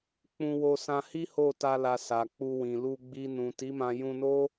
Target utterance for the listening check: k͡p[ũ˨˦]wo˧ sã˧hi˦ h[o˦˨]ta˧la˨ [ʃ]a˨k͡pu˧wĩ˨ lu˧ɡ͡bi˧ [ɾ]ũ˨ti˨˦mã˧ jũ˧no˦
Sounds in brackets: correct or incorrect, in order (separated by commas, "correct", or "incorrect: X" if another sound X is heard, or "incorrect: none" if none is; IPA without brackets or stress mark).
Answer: incorrect: ũ˧, correct, incorrect: s, incorrect: n